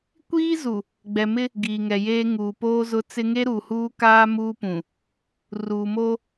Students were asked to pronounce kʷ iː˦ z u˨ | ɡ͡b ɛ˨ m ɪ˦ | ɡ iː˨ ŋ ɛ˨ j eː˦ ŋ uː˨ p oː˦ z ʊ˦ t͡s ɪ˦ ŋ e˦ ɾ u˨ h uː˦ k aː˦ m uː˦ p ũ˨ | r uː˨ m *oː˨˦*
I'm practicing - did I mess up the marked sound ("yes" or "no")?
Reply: yes